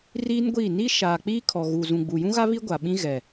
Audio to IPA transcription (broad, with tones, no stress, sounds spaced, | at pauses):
r iː˦ n ɡʷ iː˦˨ n i˦ ʃ aː˨ k͡p iː˦ kʰ ɔ˨ ɣ u˨ z ũ˨ ɡ͡b u˨ j ũ˦ ɣ a˦ β i˦ ɡʷ aː˨ ɓ ĩ˦ ɣ ɛ˨